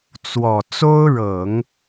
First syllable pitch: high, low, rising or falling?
low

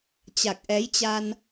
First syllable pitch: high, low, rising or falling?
low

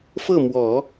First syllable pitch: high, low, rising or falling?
falling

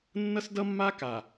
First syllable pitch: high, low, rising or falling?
high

